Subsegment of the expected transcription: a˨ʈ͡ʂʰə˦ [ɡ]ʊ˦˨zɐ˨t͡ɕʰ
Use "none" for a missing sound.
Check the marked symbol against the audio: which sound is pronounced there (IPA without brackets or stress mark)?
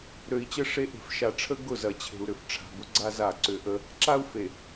ɡ